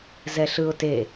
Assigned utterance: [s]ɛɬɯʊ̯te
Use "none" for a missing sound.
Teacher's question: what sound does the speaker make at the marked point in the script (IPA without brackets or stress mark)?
z